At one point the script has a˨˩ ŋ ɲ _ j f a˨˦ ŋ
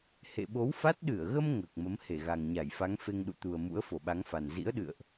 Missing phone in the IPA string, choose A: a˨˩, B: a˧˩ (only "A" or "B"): B